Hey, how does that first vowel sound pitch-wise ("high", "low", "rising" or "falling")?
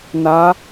rising